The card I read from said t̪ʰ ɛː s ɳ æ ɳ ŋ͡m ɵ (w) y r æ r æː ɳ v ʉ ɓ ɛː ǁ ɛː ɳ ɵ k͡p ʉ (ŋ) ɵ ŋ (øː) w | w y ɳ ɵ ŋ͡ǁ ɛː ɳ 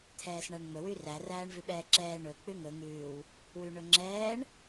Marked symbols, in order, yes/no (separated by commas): yes, yes, no